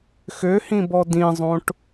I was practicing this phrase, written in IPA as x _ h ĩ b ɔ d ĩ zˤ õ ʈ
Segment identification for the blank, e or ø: ø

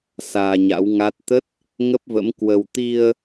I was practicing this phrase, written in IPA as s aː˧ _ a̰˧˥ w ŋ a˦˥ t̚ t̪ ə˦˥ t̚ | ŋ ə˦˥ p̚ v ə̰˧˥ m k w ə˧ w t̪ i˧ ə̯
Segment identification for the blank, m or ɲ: ɲ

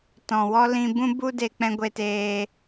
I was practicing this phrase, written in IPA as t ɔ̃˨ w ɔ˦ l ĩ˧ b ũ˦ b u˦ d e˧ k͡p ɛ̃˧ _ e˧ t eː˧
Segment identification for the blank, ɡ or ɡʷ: ɡʷ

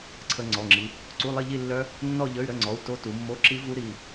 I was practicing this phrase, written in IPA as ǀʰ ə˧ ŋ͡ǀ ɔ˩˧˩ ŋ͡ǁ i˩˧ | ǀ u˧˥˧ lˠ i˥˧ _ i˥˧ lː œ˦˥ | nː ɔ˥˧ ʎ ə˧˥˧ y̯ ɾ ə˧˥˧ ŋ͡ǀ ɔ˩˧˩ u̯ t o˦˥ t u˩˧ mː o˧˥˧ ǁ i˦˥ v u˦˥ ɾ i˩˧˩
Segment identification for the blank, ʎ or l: ʎ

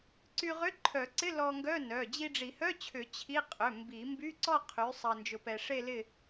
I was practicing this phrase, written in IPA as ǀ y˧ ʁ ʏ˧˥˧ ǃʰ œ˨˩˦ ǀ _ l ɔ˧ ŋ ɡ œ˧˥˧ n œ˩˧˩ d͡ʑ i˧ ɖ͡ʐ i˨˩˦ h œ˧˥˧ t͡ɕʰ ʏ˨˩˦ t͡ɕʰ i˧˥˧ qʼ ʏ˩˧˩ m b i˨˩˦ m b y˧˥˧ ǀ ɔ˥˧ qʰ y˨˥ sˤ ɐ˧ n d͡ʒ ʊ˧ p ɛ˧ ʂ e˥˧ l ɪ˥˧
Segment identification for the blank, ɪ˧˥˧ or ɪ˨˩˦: ɪ˧˥˧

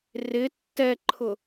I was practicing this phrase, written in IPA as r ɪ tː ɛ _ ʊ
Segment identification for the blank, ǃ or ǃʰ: ǃʰ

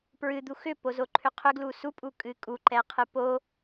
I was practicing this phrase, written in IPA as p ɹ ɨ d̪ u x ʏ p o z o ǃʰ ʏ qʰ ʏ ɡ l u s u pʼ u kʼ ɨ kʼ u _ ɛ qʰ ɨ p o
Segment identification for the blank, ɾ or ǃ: ǃ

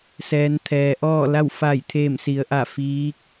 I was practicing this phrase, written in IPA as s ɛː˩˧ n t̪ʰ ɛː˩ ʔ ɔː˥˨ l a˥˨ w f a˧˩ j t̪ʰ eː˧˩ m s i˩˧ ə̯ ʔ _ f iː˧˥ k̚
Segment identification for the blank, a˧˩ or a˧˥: a˧˩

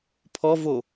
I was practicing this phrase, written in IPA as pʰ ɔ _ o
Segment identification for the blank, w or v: v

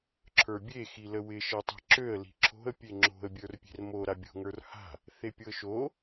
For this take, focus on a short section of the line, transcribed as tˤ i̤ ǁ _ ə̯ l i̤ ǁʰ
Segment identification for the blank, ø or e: ø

